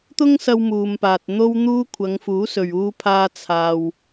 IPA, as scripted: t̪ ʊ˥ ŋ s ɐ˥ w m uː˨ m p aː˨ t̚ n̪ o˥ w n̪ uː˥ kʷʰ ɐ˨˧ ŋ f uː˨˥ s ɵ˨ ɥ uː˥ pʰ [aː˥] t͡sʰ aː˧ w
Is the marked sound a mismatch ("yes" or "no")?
no